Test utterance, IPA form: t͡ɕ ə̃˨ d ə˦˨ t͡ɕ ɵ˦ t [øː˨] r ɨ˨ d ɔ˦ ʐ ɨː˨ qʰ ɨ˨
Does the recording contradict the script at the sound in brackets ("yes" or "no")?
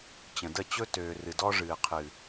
no